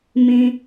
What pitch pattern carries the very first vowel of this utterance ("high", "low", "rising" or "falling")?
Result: high